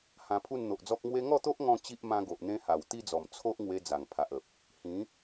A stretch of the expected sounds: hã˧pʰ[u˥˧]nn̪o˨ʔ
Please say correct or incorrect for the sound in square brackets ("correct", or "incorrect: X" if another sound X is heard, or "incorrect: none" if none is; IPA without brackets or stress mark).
correct